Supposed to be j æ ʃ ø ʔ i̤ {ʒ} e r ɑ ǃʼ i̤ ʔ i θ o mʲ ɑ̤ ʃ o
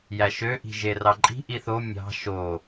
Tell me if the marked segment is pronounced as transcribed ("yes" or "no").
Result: yes